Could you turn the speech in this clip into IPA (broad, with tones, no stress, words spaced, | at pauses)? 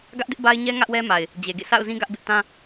ɡä˦ʔdɪ˦ʔba˦ɪ̯ ɲɛ˦ ŋä˦ʔwɛ˦ma˨ɪ̯ | d͡ʑe˨ɡḛ˦˨sa̰˦˨ʊ̯zĩ˦ ɡä˦ʔbɪ˦ʔ tã˦